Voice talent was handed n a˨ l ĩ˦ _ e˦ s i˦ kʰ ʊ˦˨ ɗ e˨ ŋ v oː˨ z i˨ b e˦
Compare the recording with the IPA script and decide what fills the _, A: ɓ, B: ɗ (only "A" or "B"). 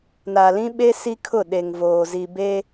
A